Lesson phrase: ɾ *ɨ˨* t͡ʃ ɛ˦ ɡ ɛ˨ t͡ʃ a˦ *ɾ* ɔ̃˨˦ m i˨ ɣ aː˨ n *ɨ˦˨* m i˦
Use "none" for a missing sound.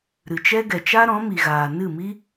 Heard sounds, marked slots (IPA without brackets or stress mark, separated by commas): ɨ˨, ɾ, ɨ˦˨